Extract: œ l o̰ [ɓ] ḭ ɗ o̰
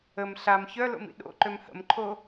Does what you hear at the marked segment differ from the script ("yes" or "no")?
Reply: yes